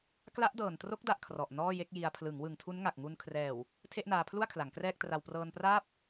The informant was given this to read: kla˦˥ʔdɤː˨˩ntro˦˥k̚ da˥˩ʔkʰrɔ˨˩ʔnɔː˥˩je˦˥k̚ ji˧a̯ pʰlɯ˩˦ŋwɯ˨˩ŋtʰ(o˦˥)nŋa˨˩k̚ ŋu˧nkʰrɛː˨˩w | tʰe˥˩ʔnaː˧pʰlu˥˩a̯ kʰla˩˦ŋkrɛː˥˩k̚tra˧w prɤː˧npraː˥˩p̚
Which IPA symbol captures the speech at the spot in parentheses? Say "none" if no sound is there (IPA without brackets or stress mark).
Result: u˦˥